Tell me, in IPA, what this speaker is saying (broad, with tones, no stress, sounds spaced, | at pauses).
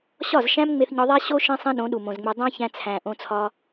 ɕ ɒ˦˨ z ʃ æ̃˦ m ŋ͡m e˧ θ ɲ ɒ˧ ðˤ æ˦ ɕ o˦ ʃ ĩ˦ sˤ ĩ˦ ɗ õ˨˦ ɗ u˨ m õ˨ z ŋ͡m e˧ dˤ æ̃˦ ç æ̃˧ t͡sʰ æ̃˨ ʔ õ˧ t͡sʰ ɒ˧